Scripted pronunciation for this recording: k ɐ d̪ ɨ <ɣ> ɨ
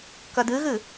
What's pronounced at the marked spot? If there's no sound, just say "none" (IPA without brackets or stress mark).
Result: ɣ